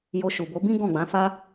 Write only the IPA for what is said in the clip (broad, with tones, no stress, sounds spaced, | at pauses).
j o˧ ʃ u˨ b o˨˦ b ĩ˦ ɡ ɔ̃˦˨ ɡ͡b ã˨˦ f a˦